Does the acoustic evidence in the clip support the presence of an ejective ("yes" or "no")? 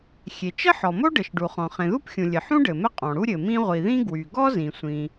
yes